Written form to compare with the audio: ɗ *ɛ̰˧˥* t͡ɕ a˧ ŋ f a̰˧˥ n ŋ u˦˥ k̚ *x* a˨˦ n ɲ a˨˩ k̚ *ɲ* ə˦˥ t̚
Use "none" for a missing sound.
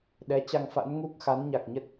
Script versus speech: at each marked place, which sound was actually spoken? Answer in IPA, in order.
ɛ˨˦, x, ɲ

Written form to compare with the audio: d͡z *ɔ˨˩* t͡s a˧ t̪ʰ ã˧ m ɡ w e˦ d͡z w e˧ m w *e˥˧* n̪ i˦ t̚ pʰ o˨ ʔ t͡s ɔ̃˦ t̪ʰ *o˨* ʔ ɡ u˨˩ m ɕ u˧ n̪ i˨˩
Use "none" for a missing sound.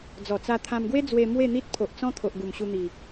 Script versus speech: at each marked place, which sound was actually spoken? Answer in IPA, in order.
ɔ˨˩, e˥˧, o˨

